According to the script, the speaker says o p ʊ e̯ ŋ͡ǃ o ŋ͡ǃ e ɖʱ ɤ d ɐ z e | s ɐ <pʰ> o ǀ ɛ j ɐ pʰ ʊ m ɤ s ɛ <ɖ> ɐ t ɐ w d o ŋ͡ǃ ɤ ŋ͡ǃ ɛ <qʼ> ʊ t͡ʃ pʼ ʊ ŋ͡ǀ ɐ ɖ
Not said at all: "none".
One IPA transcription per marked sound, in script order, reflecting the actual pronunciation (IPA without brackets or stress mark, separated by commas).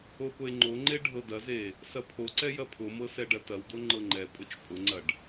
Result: pʰ, ɖ, pʼ